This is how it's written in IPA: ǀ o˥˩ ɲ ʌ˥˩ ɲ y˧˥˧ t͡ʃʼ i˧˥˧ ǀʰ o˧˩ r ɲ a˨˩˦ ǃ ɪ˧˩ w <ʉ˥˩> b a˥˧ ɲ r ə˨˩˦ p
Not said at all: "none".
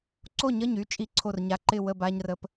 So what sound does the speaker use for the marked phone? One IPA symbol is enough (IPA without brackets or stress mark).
ə˥˩